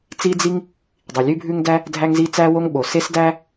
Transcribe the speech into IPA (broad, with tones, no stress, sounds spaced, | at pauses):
t͡s i˥ d͡z i˥ ŋ | dˤ i˩ lʲ ʉ˥ bʱ ʉ˥ ŋ d æ˥ | dʱ æ˥ ŋ z i˥ t͡s æ˥ w o˥ ŋ ɓ o˩ s e˥ s d æ˥